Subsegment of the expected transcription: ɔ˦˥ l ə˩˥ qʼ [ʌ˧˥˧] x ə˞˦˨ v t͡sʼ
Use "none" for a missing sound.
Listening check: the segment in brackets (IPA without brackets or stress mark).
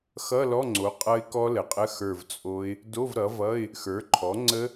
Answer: ə˧˥˧